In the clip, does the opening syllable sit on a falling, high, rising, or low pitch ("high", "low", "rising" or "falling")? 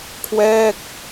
falling